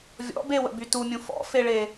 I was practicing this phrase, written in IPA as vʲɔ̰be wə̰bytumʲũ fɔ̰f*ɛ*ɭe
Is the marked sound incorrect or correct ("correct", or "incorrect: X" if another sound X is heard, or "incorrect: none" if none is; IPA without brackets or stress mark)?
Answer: incorrect: e